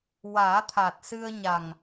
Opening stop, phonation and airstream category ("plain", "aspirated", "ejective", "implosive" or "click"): aspirated